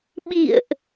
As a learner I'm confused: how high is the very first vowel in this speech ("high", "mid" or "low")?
high